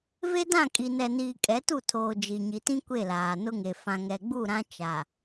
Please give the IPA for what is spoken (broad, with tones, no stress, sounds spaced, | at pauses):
v e˦ d ã˦˨ kʼ i˨ n ɛ˨ n iː˨ kʼ ɛ˨˦ t u˦˨ tʰ oː˨ d͡ʒ i˨ ɲ i˨ t ĩ˦ kʷ e˦˨ l aː˨ n ʊ˦ ŋ e˨ f ã˨ ŋ ɛ˨ ɡ͡b u˦˨ ɾ ã˦ t͡ʃ a˨